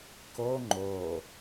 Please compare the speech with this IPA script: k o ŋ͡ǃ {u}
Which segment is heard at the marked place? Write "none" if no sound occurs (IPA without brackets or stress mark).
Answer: o